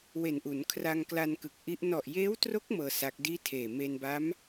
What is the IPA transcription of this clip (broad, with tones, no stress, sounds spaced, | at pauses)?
w e˨˩ n ʔ u˩˦ n kʰ r a˧ ŋ k l a˧ n k ɯ˨˩ k̚ ʔ i˦˥ ʔ n ɔ˨˩ ʔ j eː˦˥ w t r o˦˥ k̚ m ɤː˧ s a˦˥ k̚ d iː˥˩ tʰ eː˨˩ m e˧ n b a˦˥ m